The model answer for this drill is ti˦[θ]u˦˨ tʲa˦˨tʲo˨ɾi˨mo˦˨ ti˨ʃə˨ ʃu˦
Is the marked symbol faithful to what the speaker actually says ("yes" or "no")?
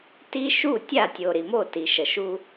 no